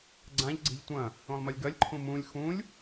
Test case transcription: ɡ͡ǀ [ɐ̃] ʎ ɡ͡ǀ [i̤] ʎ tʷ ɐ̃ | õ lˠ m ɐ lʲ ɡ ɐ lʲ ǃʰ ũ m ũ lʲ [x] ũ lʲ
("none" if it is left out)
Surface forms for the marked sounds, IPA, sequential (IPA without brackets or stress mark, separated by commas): ã, i̤, x